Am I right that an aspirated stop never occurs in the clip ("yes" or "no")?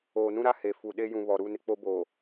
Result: yes